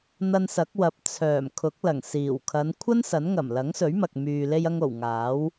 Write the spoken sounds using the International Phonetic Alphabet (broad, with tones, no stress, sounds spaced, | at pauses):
n̪ ɐ˧ n s ɐ˨˥ k̚ w ɐ˨ p̚ t͡sʰ œː˨˩ m kʰ ʊ˨˥ k̚ l ɐ˨˩ ŋ s iː˨˩ w kʰ ɐ˨˧ n kʷʰ ɐ˥ n s ɐ˨˥ n ŋ ɐ˨˩ m l ɐ˨˥ ŋ s ɵ˨˥ ɥ m ɐ˨ k̚ m yː˨ l e˧ j ɐ˧ ŋ o˨˩ w ŋ aː˨˥ w